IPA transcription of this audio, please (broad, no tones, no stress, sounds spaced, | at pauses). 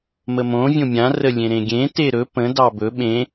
m ə m õ vʲ õ mʲ ã r ə lʲ ẽ ɾ ẽ ɡʲ ẽ t e ɾ ɵ p ə̃ d ɑ b ɵ ɓ ẽ